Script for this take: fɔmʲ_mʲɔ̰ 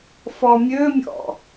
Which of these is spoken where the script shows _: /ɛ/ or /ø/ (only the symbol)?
ø